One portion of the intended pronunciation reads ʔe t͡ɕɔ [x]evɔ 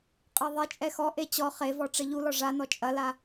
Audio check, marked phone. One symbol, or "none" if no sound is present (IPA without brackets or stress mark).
χ